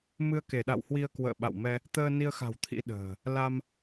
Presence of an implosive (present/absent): present